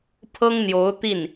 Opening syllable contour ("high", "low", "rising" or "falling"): high